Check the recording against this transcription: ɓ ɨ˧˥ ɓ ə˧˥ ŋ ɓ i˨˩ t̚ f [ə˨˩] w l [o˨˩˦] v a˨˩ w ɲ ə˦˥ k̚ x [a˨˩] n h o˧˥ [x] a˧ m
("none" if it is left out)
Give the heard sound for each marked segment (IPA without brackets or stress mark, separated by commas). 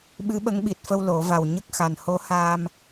ə˧, o˨˩˦, a˨˩, h